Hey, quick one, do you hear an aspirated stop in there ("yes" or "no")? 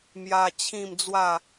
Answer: yes